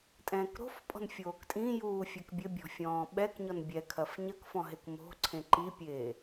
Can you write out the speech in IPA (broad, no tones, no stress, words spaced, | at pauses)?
tʼɛ̃ːkɾo̤fpʼɔ̤n fʲoːktʼĩjuː fʲɛkbʲɘbʲɔ̤ fʲɔ̃ːɓɛkɲɔn bʲɛkʰɐf ɲɐkfɔ̃ ɦekmo̤ǀʰẽ ǃipʲeː